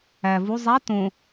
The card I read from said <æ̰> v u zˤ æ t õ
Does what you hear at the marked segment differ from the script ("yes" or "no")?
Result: yes